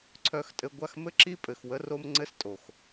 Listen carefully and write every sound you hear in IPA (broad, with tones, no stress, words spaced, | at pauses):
ǀʰœ˧xtʼɘ˧ ɡʷa˦˨xmɘ˦ǁi˦ pʼɘ˨xwə˧ro˧m ŋ͡ǀɘ˦stʼo˨x